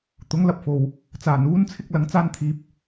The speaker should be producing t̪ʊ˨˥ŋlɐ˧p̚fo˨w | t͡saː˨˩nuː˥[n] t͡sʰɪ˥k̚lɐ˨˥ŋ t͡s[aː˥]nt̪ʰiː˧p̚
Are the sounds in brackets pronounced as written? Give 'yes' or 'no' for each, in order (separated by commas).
yes, yes